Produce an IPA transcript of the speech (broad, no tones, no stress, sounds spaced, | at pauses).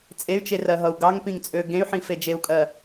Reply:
t͡sʼ e y̯ t͡ʃ e r ɜ ɦ ʌ u̯ ɡ ɑ ŋ p ĩ ŋ t͡sʼ ø ɡ ẽ y̯ ħ ĩ f e d͡ʒ e u̯ kʼ ɜ